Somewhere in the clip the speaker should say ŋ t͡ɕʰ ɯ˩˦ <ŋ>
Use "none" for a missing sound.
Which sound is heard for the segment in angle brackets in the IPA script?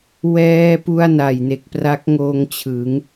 ŋ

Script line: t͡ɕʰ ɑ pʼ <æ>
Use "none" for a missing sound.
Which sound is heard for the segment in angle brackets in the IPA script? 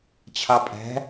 æ̤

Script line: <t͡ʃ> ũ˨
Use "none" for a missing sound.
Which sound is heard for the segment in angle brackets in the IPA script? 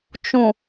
t͡ʃ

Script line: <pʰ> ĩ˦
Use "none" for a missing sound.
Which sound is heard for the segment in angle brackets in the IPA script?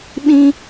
ɓ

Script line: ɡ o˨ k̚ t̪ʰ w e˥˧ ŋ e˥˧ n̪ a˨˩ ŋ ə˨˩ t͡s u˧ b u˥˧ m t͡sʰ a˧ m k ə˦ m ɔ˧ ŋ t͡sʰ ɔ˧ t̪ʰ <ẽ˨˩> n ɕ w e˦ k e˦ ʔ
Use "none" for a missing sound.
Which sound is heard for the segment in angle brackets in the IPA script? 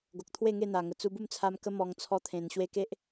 ẽ˨˩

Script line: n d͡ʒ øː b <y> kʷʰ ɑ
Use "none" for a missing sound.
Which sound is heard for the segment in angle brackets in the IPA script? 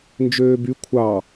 y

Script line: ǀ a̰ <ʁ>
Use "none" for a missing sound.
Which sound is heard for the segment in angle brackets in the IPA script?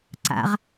ʁ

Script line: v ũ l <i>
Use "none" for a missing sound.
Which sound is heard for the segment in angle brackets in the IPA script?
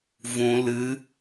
ɨ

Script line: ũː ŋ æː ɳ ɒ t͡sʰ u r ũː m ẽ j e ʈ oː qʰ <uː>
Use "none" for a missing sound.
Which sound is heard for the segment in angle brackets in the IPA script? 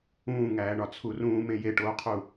uː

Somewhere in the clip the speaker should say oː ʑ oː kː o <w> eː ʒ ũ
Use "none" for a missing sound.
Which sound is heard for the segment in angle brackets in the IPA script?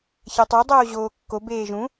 b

